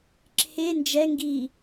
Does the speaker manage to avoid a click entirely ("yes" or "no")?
no